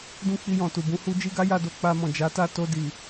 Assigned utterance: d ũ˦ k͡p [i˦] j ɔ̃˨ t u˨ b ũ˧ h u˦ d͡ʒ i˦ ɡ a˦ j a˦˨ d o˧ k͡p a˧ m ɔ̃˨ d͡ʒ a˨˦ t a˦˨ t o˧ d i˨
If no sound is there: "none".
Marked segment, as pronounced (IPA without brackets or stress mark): i˧